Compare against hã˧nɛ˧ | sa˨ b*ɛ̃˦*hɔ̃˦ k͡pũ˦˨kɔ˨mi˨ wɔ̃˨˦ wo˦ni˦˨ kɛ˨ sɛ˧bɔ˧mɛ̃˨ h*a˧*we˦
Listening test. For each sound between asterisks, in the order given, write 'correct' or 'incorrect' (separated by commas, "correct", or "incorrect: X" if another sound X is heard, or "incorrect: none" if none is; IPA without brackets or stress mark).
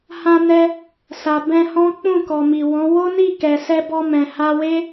incorrect: ɛ̃˧, correct